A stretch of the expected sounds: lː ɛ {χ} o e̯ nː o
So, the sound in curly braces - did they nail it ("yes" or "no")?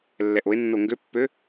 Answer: no